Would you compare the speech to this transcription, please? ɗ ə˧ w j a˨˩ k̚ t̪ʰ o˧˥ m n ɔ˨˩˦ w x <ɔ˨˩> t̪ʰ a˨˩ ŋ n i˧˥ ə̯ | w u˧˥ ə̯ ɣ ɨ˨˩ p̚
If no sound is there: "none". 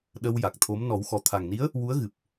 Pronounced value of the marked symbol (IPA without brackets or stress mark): ɔ˨˩